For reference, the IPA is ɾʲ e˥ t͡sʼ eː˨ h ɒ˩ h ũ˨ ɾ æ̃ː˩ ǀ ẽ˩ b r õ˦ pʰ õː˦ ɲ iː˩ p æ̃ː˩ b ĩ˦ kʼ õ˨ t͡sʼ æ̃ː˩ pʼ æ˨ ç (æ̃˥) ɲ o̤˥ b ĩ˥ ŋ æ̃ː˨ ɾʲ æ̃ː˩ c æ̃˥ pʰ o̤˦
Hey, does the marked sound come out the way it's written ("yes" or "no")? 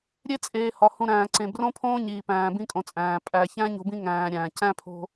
yes